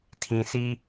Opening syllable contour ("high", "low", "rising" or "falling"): low